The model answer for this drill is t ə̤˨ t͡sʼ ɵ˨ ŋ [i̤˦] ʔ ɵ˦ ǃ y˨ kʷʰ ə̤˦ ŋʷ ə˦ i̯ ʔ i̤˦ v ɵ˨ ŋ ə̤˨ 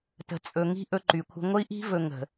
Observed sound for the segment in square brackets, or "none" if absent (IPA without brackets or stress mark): i̤˦